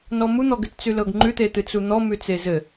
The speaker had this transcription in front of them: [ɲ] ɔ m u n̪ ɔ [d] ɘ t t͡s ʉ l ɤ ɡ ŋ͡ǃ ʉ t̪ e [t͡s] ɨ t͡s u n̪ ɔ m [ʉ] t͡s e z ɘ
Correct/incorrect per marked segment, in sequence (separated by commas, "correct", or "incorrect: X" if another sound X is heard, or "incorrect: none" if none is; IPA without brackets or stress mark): incorrect: n, incorrect: ɡ, incorrect: t̪, correct